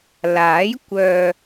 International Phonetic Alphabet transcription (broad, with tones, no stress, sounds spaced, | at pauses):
l aː˨˥ j kʷ œː˨